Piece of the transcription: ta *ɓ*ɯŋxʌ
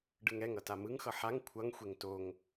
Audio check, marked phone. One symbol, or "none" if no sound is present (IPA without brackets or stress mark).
m